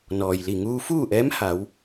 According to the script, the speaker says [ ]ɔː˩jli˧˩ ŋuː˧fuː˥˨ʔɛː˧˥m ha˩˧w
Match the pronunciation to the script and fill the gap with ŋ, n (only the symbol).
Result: n